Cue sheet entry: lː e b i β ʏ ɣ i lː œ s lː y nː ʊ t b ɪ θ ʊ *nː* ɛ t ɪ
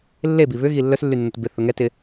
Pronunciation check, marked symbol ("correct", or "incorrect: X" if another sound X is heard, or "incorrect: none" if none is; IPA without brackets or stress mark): incorrect: ŋ